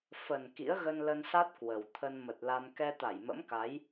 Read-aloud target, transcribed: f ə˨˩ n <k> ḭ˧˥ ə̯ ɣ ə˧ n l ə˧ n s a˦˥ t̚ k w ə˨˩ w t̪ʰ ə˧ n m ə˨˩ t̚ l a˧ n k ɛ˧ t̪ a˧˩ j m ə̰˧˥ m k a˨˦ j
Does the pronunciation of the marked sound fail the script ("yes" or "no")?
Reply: no